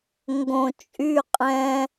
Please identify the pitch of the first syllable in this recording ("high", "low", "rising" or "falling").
low